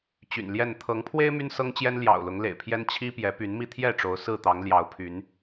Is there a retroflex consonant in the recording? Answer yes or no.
yes